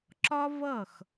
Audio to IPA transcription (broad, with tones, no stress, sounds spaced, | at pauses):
ǁ ɒ˦ v ʌ˦˨ x